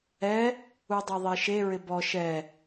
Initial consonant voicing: voiced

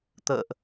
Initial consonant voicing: voiceless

